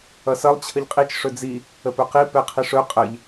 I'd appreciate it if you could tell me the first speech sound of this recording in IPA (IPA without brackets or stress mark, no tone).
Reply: ʌ